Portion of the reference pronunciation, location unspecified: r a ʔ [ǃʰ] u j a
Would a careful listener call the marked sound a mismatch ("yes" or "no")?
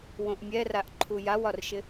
no